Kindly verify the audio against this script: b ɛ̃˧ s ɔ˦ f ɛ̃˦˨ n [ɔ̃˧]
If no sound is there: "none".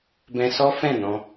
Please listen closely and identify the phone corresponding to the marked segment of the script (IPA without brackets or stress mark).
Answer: ɔ̃˧